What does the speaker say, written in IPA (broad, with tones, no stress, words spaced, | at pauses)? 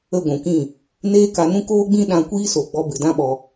ə˦˨ɡʷũ˨kĩ˦˨ | neː˦ka˧nũ˦ koː˦ɡ͡bĩ˦ ɗã˧kʷiː˦so˨ɡ͡bɔ˧ bɨ˨dã˦ɓɔ˧